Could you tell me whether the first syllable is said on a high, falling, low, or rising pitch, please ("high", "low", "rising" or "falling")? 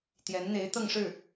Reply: rising